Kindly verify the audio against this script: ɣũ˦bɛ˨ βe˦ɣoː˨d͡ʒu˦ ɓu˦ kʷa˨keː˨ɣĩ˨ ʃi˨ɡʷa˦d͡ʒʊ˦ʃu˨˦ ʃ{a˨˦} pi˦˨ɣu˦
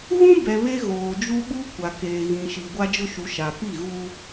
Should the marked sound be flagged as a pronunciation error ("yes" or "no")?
yes